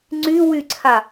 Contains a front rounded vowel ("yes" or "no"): yes